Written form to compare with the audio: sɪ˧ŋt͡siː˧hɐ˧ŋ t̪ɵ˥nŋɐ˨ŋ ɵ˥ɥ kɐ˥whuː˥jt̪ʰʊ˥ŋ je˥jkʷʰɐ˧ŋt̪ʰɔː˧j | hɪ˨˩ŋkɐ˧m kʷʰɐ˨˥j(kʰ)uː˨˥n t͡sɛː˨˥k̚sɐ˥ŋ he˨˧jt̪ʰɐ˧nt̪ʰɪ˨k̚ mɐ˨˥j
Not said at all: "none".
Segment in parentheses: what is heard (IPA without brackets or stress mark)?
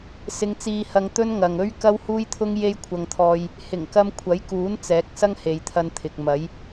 k